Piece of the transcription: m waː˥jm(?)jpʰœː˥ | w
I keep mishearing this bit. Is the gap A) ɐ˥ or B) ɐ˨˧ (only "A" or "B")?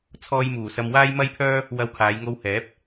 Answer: A